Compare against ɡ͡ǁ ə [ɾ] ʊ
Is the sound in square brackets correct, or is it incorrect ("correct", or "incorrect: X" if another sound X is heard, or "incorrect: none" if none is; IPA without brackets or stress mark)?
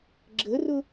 incorrect: r